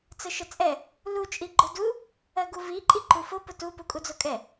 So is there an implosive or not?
no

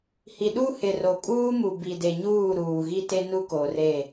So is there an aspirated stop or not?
no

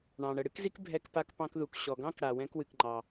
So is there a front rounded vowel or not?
no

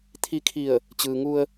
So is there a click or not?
no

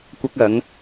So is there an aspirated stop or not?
no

